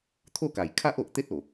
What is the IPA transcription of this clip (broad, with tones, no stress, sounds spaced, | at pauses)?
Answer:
t̪ʰ o˥˧ k a˨˩ j kʰ a˦ ʔ o˨ ʔ t̪ e˦ t̚ o˨˩